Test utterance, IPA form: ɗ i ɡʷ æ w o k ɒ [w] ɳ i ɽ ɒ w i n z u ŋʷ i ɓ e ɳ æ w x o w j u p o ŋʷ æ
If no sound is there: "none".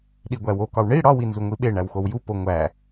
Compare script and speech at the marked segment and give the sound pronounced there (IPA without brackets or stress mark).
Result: w